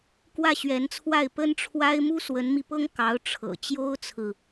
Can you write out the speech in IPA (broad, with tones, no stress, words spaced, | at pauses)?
kwä˥˩ɕɥɛ˧˥nt͡sʰwa˥˩ɪ̯ pə˥nʈ͡ʂʰwa˥ɪ̯ mu˥swə˧˥nmi˧pɤ˥ŋ kɑ˧˥ʊ̯ʈ͡ʂʰɤ̰˨˩ t͡ɕjo˥ʊ̯t͡sʰɹ̩˨